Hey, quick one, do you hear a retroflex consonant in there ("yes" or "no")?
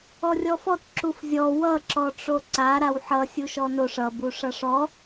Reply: yes